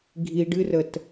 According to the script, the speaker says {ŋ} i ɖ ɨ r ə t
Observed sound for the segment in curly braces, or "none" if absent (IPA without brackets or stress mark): ɡʱ